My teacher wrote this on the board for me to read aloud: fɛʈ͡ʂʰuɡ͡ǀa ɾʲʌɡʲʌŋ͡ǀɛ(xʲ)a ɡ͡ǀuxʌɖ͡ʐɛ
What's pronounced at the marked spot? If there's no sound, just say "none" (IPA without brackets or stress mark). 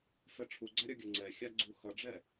xʲ